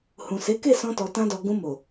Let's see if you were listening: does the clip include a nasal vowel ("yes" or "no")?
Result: yes